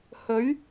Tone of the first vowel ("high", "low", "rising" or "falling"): rising